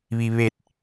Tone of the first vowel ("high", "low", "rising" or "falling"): low